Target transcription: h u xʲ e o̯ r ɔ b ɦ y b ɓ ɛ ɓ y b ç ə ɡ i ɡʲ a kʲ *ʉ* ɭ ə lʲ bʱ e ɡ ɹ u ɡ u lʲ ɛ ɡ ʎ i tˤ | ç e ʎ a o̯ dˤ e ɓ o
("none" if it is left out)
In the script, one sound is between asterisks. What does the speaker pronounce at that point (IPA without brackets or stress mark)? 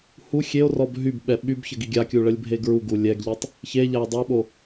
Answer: u